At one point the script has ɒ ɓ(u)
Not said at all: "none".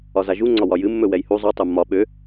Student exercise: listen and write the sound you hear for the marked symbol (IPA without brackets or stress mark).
ø